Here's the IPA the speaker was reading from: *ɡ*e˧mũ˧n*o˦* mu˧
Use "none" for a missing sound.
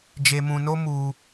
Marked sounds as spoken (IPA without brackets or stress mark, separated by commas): d͡ʒ, o˦